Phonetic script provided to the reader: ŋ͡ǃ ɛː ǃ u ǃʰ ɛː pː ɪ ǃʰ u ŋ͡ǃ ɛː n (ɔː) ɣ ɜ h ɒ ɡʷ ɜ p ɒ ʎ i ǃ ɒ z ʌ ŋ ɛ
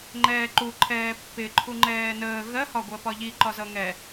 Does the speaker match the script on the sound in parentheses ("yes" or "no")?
no